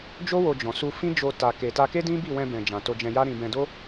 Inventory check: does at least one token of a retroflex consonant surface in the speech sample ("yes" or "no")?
no